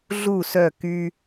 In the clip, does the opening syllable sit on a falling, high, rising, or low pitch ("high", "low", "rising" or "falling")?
falling